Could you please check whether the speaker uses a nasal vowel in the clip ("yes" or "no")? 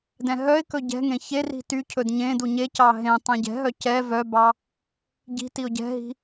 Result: yes